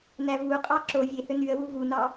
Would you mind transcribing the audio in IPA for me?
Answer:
n æ v u qʼ ɑ ǁ o vʲ e h ø n y ə̯ w u v u n ɑ

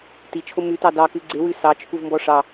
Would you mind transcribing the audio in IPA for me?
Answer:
t i t͡ʃʰ o m ʉ t ɑ d ɑ k ʉ ɡ͡ǀ e w ʉ s ɑ t͡ʃʰ u v m b ɔ ʂ ɑ

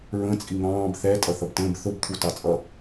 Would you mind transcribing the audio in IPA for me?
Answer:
ɹ ə̃ t͡sʼ i ŋ ɑ̃ː b θ ɛ tʼ ʌ θ ʌ b t ə̃ː b θ ʊ b t̪ʰ u t ɑ t͡sʼ ʌ

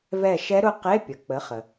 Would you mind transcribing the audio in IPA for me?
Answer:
v ɛ˦˨ ʃ ɛ˦˥ ɾ ʊ˦˥ q e˧˥˧ pʲ ə˩ k͡p ə˩˥ χ ə˩

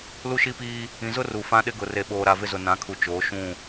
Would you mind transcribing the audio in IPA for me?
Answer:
l u˦ ʃ i˦ p iː˦ | ĩ˨ z ʊ˦ r u˨ f ã˦ ɗ ɪ˦ ɡ ʊ˨ r e˨ ɓ oː˨ ɾ a˨ v ɪ˦ z ʊ˨ n ã˨˦ kʰ u˨ t͡ʃ oː˨˦ ʃ ũ˦˨

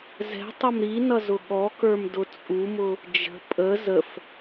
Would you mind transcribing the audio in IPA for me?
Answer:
z ɛ̤ tˤ ʌ m ɾ i n ʌ z ʊ ɠ ɔ k ə˞ m d ʊ t͡sʼ u m ʊ | d͡ʒ ə̤ pʼ ə z ə f

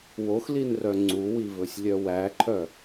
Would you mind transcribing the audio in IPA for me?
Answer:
w o x l i n r œ ŋ͡ǀ u w i v ɵ sʲ lʲ œ w æ ǃʰ œ

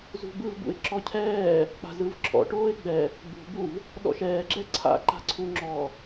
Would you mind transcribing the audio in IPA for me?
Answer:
z ṳ b ɯ v b ṵ ɪ̯ ǁ ɔ cʰ ɛː | k͡p a̤ z ɯ v ǁʰ ɔ̰ ʈ oː ɪ̯ ɡ͡b ɛ | ɡ͡b ṳ b u v | ɗ ɔ̰ ʃ ɛː ɡ͡ǁ ɛ ǀʰ a̰ ǃ a̤ ǀʰ u ŋ͡ǁ ɔ

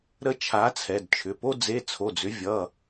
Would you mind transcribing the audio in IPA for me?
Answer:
ɾ ə˥ t͡ʃʰ a˨˦ t͡sʰ ɛ˩˧˩ d t͡ʃʰ ʏ˩˧˩ p o˥ d͡z e˧˥˧ t͡sʰ o˩˧˩ d͡z ʏ˨˦ vʲ ʌ˩˧˩

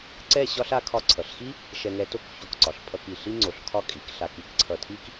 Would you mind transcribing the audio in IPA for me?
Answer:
ǀ ɛ˥˧ ɕ ɒ˥ ɬ a˥ kʰ ɒ˧ ǀʰ ʌ˩˧ ɬ x i˥ | ʃ ɛ˧ ŋ ɛ˧ t o˥ k ç o˧˩ k ǀ ɒ˩˧ ɬ pʰ ʌ˧ k i˧˩ ɬ i˥ ŋ͡ǀ o˧˩ ɬ kʰ ɒ˥˧ kʼ i˩˧ k ɬ a˧ k i˥ k ǀʰ ʌ˧˩ tʰ i˥ k

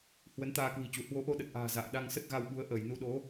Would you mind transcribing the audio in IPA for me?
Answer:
h w ə˨˦ n t̪ aː˧ k w i̤˨˩ t͡ɕ u˧˩ h w o˨˦ ʔ o˧ ɗ ə˨˩ t̚ ʔ a̤ː˨˩ z a̰ː˧˨ ɗ a˧ ŋ s ə˦˥ t̚ ɣ a˧ w ɓ u˨˦ ə̯ ʔ əː˧˩ j n u˨˦ ɗ o˨˦

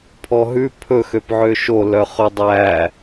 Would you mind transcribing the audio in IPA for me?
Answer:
pʰ ɔ ɦ ʉ pʰ ɵ x ø p ʕ ø ʃ o l œ χ ɵ dˤ æ

